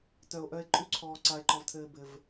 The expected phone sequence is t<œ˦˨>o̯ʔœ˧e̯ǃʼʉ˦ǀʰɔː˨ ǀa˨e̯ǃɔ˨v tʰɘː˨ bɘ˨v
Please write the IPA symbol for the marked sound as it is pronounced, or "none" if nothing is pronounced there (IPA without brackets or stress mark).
œ˨